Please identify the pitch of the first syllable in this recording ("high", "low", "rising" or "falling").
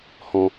low